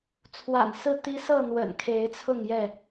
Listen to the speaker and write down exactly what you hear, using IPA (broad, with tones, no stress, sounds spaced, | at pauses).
t͡sʰ w a̰˨˩ n s ɹ̩˥˨ t̪ i˦ s ɤ˥˨ n̪ w ə̰˨˩ n kʰ e˨˦ ɪ̯ t͡sʰ ʊ˥˨ ŋ j ɛ˥˨